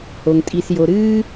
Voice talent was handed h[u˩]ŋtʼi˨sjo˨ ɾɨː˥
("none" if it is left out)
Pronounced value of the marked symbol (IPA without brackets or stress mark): o˩